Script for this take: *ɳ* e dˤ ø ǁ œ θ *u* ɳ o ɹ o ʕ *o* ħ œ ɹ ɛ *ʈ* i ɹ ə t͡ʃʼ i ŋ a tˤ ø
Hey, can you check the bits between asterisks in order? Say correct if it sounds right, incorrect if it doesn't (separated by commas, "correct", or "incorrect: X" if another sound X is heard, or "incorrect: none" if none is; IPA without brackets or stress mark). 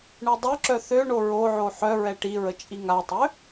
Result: correct, incorrect: ø, correct, correct